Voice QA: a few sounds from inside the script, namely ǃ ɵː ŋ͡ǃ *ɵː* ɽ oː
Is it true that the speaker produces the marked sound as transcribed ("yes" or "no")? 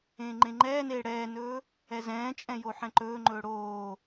yes